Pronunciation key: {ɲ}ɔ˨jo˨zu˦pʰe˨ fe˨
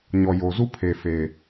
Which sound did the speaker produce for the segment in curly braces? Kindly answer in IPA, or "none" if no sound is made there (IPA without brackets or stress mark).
ɲ